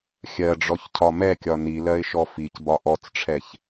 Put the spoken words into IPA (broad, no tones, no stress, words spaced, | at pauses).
xʲɜɖ͡ʐɔçcʰɒ mɛkʲɒ nilɜɪ̯ʃɔ ficbɒ ʔɔt͡sʈ͡ʂʰɛç